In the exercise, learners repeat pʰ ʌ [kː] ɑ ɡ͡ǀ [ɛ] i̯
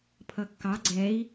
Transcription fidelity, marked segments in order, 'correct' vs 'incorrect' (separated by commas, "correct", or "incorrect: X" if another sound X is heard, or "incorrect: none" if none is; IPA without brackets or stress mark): correct, correct